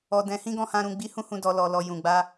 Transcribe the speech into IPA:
ɔ˨ d ɛ̃˨˦ h ĩ˦ ɡ ɔ̃˧ h ã˧ ɾ ũ˧ ɡ͡b i˧ h ũ˧ h ũ˨ d ɔ˨ l ɔ˨ l ɔ˨ j ũ˨ ɡ͡b a˧

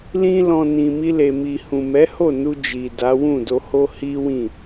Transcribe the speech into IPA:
l ĩ˦ l ɔ̃˧ n ĩ˨ m i˧ l e˨ m i˨ h ũ˨ m ɛ˨˦ h o˦˨ n u˧ d͡ʒ i˨ d a˨˦ w ũ˦˨ d o˧ h o˦ h i˦ w ĩ˦˨

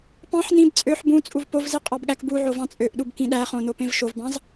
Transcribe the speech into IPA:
p ɑ̃ ħ n ĩ b t͡sʼ ø ħ b ũ t͡sʼ u v p o v z i qʼ ɑ b ɠ æ k b u ʕ o v ɑ̃ t͡sʼ ø ʔ ɗ u b k ĩ ɗ æ χ õ n o p ẽ v ʃ o v b ɑ̃ z

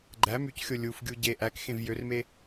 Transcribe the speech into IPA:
ɡ͡ǃ æ m y c xʲ o lʲ u f ɡʲ u ɟ e ʔ æ k x ẽ v j ø r m e

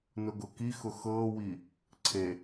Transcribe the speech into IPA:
n ʊ ɡ ʊ k i x ʊ x ɤ w i | ǀʰ e

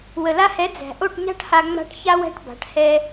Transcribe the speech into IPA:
w ə˨ l a˧ h ɛ˨˦ d͡z æ̤˨ ʔ o˦˨ ʈ ɲ a̤˦ ʈ h a˧ ŋ͡m a̤˧ ʈ ç a˦ w æ̤˦ ʈ b a̤˨˦ ʈ h ɛ˧

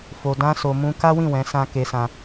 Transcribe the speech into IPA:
f o˧ d ã˦ s o˧ m ũ˦ k a˦ w ĩ˦˨ w ɛ̃˨˦ s ã˦ k e˧ s ã˧

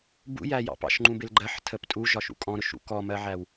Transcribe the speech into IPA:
b ṵ j æ j ɑ̰ p ɑ̰ ʃ ŋ͡ǃ ũ b ɪ l ɡ͡ǃ ɜ ħ tʰ əː p tʼ u ʒ ɒ ʃ ṵ kʼ ɔ̃ ɾ ʊ ʃ ṵ k ɔ m ɜ ʕ æ w

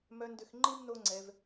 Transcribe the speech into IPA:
m œ˧ n d ʏ˧ x ŋ͡ǃ i˦ m n o˦ ŋ͡ǀ ɛ˧ v

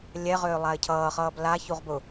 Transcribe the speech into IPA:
lʲ ɛ ʁ ʏː lˠ a ɪ̯ cʰ ʌː χ ʌː b l a ç u ʁ b ʊ

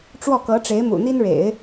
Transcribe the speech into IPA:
ʈ͡ʂ w ɔ˥˩ k ɤ˧˥ ʈ͡ʂ e˧˥ ɪ̯ m ṵ˨˩ n̪ i˥ n ɻ ḛ˨˩˦ ɪ̯

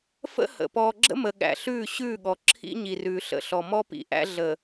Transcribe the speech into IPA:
f ə̰˦ h ə̰˨ p ɔː˨ ɡ͡ǁ ə̰˦ m ə˨ ɠ æ̰˨ ɬ ʉː˦˨ ɕ ʉː˦˨ ɠ ɔ˨ ǁʰ ḭ˦ ɲ i˨ r ʉː˨ ɬ ə̰˨ ɬ ɔ˨ m ɔ˦ p ḭ˨ ʔ æ̰˦ ɮ ə˨

